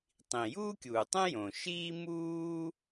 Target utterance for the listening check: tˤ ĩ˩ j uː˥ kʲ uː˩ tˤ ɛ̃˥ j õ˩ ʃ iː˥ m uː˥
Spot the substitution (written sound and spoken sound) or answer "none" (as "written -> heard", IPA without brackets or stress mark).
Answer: none